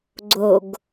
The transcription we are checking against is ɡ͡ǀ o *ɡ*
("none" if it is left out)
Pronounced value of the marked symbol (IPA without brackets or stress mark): ɡ